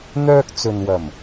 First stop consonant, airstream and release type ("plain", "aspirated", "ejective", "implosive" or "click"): plain